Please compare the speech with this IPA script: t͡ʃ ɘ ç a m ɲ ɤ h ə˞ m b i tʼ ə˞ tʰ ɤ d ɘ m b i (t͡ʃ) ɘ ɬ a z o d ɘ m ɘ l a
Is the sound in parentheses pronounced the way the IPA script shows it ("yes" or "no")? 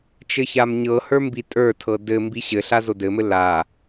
no